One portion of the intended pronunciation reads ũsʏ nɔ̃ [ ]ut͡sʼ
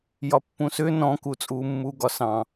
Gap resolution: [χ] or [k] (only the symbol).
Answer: k